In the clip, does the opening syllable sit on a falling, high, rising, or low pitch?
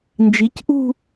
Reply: rising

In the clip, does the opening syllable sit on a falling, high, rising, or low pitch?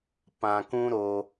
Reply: low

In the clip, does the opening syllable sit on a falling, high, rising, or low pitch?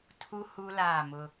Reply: high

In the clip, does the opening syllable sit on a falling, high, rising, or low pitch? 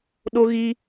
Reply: high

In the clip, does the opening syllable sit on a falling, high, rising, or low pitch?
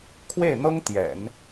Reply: falling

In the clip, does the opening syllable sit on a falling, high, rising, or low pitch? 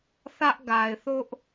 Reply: high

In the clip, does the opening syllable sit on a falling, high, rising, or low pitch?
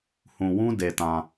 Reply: low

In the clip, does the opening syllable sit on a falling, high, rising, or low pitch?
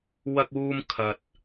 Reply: high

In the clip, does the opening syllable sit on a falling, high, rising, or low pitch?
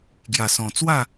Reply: low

